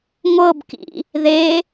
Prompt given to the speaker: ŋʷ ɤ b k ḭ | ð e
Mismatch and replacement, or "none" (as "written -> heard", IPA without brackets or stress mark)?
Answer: none